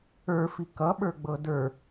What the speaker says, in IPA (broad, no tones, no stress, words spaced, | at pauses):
ə˞fi kʌɓə˞ɡ͡bɤ də˞